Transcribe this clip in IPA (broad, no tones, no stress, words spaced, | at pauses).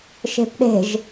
ʃe̤pɗe̤ʒ